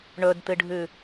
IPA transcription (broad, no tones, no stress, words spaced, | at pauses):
ɳɵdt̪ɨɖʱʉ